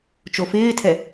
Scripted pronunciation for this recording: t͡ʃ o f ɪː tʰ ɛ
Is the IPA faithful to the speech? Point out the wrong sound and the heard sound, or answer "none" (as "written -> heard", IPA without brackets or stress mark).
none